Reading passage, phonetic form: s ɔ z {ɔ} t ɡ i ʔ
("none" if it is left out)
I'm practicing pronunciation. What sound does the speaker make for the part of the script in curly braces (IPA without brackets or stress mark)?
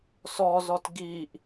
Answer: ɔ